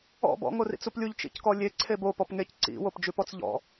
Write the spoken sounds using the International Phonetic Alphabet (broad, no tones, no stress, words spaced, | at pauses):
ɔ̰ bɔ̰ ŋorḭt͡suplʲuʎ t͡ʃḭckɔlʲe ǀʰebo pɔpŋec ǀḭ wopd͡ʒʉpɔt͡sʎɔ̰